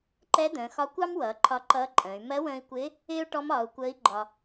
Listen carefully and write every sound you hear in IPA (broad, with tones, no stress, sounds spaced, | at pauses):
ǃ ɛ˧˥ d̪ ə̃ː˩˧ x ɒ˧˥ kʷ ɑ˥ m w ʌː˩˧ ǃʰ ɒ˧˥ ǃ ʌː˧˥ ǃʼ ə̃ː˩˧ y̯ m ɜ˧˥ w ə̃ː˧ i̯ kʷ ɪː˧˥ | ɪː˥ u̯ ʈ ɔ˧˥ m ɒː˩˧ u̯ kʷ əː˧˥ i̯ ɡ͡ǃ ɒ˧